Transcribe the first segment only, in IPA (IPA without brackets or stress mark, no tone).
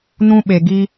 n